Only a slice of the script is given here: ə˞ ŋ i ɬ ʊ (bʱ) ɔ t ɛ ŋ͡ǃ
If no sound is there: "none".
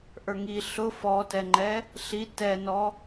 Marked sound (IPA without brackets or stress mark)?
f